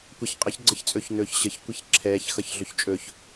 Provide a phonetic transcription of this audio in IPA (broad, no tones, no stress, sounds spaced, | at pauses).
kʷ ɛ ç qʼ ə ç ɡ͡ǀ ɘ ç t͡sʼ ɵ ç n ɵː ç ɕ ə ç kʷ i ç ǁʰ ɛː ç x ʌ ç ɮ ɵ ç t͡ʃʼ ɵ ç